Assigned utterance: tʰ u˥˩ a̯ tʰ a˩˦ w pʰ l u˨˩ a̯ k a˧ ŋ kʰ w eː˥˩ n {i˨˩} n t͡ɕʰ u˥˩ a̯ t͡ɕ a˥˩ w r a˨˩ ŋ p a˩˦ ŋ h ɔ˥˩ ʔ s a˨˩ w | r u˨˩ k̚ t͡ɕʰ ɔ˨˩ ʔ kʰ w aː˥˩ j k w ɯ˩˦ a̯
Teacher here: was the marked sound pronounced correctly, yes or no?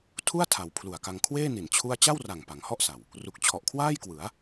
yes